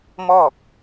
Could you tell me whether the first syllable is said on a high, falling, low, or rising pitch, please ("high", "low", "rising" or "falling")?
falling